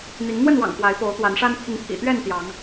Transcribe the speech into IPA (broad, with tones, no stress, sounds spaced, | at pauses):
n̪ i˨˦ ŋ n̪ w ə˥˨ n w ɑ̰˨˩ ŋ p w a˨˦ ɪ̯ p o˨˦ ʊ̯ t̪ w a˨˦ n ʂ a˦ n pʰ i˨˦ ŋ pʰ ḭ˨˩ t̪ ɥ ɛ˥˨ n t̪ j ɑ˨˦ ŋ